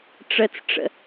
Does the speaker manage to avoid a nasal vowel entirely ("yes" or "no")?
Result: yes